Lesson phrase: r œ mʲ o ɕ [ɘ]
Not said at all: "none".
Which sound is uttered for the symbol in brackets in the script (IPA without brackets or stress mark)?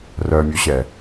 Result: ɛ